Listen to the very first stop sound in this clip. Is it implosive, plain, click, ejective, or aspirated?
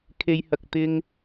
aspirated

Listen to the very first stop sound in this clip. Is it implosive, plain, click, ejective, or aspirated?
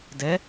plain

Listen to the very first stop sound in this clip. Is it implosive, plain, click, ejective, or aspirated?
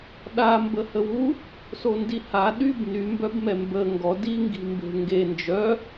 implosive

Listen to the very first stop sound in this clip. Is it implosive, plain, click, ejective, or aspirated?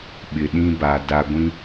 implosive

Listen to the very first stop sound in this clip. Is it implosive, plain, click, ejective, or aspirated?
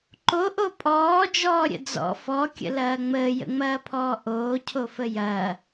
click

